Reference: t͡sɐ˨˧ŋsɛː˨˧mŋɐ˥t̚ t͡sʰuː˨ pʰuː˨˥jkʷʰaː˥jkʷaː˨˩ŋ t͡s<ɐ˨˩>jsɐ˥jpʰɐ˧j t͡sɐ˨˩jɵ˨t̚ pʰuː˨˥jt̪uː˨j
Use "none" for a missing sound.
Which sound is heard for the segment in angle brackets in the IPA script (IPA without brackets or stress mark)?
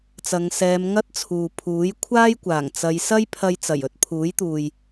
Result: ɐ˨˧